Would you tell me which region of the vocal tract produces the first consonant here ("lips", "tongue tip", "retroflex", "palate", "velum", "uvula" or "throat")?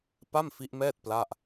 lips